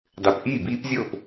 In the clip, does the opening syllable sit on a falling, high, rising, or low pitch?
low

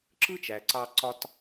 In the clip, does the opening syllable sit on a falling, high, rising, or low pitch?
high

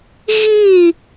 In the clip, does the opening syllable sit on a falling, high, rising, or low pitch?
falling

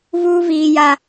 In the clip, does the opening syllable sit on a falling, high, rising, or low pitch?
high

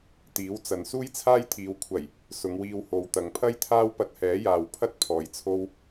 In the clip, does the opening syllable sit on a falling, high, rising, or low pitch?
rising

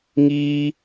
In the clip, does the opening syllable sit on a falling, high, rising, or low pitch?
high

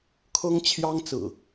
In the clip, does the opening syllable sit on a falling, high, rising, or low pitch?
high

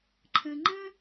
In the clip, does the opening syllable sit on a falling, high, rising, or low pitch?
low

